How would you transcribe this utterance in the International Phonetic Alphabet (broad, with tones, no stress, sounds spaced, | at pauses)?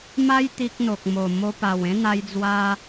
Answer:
m a˦ j t̪ i˦ k̚ n̪ o˨ k̚ m o˨˩ m o˧ p a˨˩ w ẽ˦ n̪ a˧ j d͡z w a˧